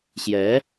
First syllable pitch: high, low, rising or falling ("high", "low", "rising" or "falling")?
rising